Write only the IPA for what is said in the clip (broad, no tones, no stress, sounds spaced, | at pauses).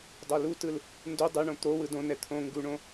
dˤ o l u t ɯ l | n d u dˤ ɯ ɳ õ t̪ o w ɯ d õ n ɛ t̪ʰ õ ŋ ɡ u ɳ õ